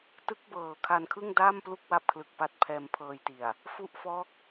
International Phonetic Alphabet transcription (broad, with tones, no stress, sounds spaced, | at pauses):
t ɯ˦˥ k̚ b ɤː˨˩ kʰ a˧ n kʰ ɯ˥˩ ŋ d aː˥˩ m p l u˥˩ k̚ w a˦˥ p̚ kʰ l ɯ˨˩ k̚ p a˦˥ t̚ pʰ ɛː˧ m pʰ ɤː˧ j t i˨˩ a̯ | f u˦˥ ʔ f ɔː˦˥ k̚